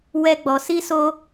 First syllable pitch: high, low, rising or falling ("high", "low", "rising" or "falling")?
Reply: high